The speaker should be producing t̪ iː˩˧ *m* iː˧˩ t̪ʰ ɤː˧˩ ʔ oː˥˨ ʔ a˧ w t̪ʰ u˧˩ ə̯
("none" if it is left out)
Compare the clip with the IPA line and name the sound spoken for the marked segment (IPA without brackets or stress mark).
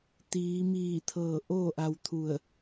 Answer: m